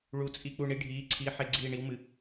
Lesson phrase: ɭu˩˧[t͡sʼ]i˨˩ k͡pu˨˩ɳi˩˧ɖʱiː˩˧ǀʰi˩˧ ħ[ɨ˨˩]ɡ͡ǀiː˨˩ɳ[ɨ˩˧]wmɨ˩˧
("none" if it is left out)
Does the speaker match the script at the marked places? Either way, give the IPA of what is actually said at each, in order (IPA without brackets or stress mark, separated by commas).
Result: t͡sʼ, e˨˩, i˩˧